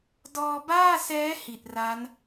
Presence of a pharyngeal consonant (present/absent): absent